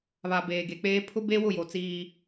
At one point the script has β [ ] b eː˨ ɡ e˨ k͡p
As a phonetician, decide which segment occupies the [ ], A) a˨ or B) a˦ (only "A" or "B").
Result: A